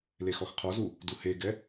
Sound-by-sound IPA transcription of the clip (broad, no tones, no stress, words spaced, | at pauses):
lexɔxqʰɔzu | duheɡɛ